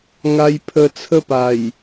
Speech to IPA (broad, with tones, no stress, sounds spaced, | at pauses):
ŋ a˧ j pʰ ə˧ t͡sʰ ə˦ p a˨˩ j